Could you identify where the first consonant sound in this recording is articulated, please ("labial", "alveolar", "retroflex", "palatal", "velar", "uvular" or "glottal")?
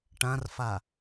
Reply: retroflex